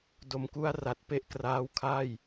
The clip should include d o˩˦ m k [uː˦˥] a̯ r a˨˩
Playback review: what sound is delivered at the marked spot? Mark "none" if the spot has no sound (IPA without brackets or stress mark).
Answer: u˦˥